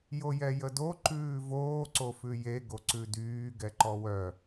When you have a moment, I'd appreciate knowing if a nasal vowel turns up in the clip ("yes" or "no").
no